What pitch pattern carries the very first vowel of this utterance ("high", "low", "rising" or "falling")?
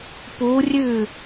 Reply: rising